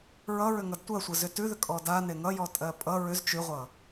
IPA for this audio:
ɹ ʌ ɹ ʏ ŋ ʌ d tʷ ɜ sʷ ʌ z ʏ t ʉ ð ʏ kʼ ɔ d a n e ŋ ʌ j ɔ tʼ ɜ pʼ ʌ ɹ ʏ z t͡ʃ ʉ ʁʷ ʌ

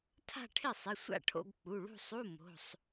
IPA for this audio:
tʰ a̤˥˧ ʈʰ ɪ˥˩ sˤ ɪ˩˧˩ sʷ a̰˥˩ ʈʰ o̰˧˥˧ ɡ k͡p u˩˧˩ ɭ ṳ˥˧ sˤ u˧˥˧ m o̤˩˧˩ sˤ

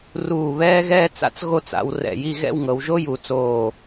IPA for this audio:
r uː˧˩ β ɛː˥ ɣ ɛː˥ t͡s a̰˥ t͡s ɣ o˥˧ t͡s a̰˧ w r ɛ̰˧˩ j i˥˧ ɣ ɛ̰˥˧ w ŋ ɤ˩˧ w ʒ o˥ j u˩˧ t͡s oː˧˩

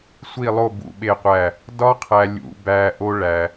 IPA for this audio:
sʷ i˦˨ lˠ o˦˨ b ṵ˨ ɓ e˦˨ qʷ æ˦˨ | d ɒ˦ qʰ æ˨ lʲ ṵ˨ b æ˨ ʔ o˦ ɭ æ˨

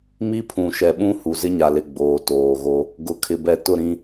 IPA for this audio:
m i˦ pʰ ũ˨ ʃ ɛ˨ ɓ ũ˦ h u˨ z ɪ˦ ɲ a˨ l ɪ˨ ɡ͡b oː˨ t oː˨ ɣ o˦ | ɡ ʊ˨ kʰ ɪ˨ b ɛ˨ t ʊ˦˨ ɾ ĩ˦

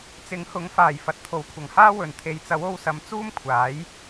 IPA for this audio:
t͡s ɪ˨˥ ŋ h ʊ˨˥ ŋ f aː˨˩ j f ɐ˨ t̚ t̪ʰ o˨˥ w kʷʰ ɐ˨˩ ŋ h aː˥ w ɵ˨˩ n t̪ʰ e˨˧ j t͡s ɐ˨˥ w o˧ w s ɐ˨˧ m t͡s uː˥ m kʷʰ aː˨˥ j

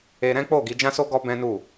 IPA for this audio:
e˧ ɾ ɛ̃˦ k͡p o˦˨ ɡ i˨˦ d͡ʒ ã˦ s o˦ ɡ ɔ˦ b ɛ̃˦ n u˦˨

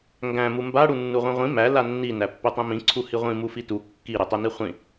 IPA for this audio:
ŋ ɡ æ̃ m u m b a ɽ u nː u ʁʷ ĩ ʁʷ ĩ m æ l a nː i n æ pː i tˤ ĩ m ĩ ǀʰ u h i ʁʷ ĩ m u f i t u kː i ɾ i tˤ i n i χʷ ĩ

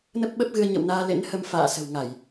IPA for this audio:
n ə˦˥ p̚ ɓ ə˦˥ p̚ ɣ ɨ˧ ə̯ ɲ ə̰˧˨ w n aː˧ l ḛ˧˥ n h ə˧ m f a̰ː˧˨ s ə̤˨˩ w ŋ a˧˩˨ j

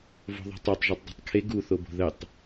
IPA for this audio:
v o̤ ðˤ e̤ tˤ ɜ tˤ ʒ o tˤ dˤ e̤ tˤ kʰ e ɡ u θ o b o̤ ð ə tˤ

